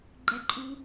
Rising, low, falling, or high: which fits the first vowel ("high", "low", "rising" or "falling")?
high